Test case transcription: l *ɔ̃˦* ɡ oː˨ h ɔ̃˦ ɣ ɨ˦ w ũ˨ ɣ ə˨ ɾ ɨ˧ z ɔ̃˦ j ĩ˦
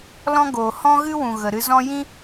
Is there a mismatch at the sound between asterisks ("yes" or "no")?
no